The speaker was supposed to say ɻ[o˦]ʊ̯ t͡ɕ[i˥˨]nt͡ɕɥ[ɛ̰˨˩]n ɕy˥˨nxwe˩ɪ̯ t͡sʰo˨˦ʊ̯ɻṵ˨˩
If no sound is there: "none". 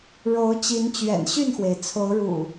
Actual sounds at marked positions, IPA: o˨˦, i˨˦, ɛ̰˨˩

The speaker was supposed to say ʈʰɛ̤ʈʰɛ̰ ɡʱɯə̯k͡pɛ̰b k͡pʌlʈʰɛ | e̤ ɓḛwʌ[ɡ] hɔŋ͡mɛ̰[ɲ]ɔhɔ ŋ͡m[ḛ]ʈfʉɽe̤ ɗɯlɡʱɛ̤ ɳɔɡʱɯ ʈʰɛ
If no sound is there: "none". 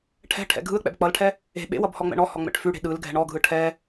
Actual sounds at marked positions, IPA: b, ɳ, ɛ̰

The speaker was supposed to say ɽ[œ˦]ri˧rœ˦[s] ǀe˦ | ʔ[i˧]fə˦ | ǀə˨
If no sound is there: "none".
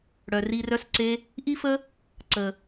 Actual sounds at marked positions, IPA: œ˨, s, i˦

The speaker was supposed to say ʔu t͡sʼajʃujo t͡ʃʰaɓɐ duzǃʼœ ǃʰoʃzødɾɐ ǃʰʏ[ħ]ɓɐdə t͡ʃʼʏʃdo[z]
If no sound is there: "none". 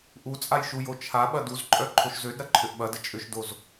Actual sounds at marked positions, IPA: ʔ, z

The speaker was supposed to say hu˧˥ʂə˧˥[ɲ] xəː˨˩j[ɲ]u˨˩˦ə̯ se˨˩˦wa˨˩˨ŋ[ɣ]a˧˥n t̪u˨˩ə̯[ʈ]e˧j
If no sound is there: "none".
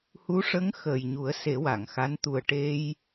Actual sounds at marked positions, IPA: ŋ, ɲ, x, ʈ

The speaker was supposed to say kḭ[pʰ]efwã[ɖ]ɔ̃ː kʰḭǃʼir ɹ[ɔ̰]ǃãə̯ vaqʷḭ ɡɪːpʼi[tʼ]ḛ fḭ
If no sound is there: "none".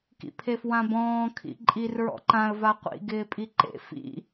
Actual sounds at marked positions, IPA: pʰ, b, ɔ̰, ǃ

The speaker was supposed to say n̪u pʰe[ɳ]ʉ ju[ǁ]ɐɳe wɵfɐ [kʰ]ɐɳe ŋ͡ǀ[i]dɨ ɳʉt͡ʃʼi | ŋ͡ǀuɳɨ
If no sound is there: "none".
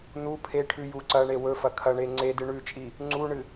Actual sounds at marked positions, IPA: ʈʰ, ǀ, kʰ, e

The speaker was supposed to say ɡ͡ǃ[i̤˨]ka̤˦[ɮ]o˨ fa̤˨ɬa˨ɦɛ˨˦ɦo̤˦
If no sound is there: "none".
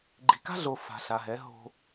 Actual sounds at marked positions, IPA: i̤˨, ɮ

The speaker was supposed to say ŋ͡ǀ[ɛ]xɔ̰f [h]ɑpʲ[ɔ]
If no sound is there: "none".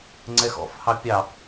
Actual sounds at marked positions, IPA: ɛ, h, ɑ

